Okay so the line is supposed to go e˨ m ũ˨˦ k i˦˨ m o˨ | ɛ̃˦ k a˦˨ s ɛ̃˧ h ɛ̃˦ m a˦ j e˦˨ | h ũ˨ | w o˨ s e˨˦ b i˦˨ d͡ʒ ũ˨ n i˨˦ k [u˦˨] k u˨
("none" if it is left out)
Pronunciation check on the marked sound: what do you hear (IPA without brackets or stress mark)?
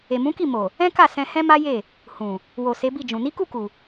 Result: u˦˨